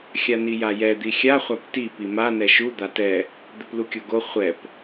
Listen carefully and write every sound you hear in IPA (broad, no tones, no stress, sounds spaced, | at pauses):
xʲ a n i j a j ɛ d̪ i xʲ a χʷ a p t i p i m a n ɛ ʃ u d̪ a t ɛ | d̪ ɘ p l u kʲ o ɡ o χʷ ɛ p